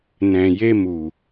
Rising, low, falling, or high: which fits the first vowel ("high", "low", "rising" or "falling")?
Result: low